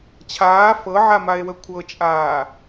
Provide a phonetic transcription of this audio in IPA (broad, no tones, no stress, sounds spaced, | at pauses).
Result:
t͡ɕʰ aː f ɤ ʕ a m a e̯ w ə kʷʰ ɤ t͡ʃʼ aː